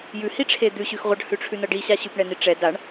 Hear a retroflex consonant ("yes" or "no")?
yes